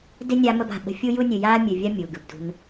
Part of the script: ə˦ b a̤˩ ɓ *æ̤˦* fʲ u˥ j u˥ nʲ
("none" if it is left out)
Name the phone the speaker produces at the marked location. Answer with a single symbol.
ə̤˦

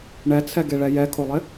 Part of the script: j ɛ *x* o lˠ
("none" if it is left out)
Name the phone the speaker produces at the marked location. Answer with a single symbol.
kʰ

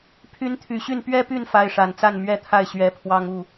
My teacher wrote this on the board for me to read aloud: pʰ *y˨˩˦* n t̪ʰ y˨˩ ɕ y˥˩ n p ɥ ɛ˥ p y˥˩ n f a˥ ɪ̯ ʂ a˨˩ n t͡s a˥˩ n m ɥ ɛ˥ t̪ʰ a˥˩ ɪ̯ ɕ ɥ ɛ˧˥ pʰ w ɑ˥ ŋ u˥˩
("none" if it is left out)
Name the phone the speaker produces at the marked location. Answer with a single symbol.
y˧˥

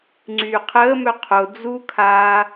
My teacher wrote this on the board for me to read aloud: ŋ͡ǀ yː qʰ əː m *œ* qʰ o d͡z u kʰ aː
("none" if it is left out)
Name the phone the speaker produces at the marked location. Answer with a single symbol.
œ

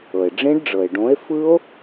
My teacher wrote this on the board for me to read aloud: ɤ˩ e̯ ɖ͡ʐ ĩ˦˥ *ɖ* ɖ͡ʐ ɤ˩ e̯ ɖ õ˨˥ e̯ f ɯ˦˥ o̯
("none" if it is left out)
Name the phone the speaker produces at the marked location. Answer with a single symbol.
ɖ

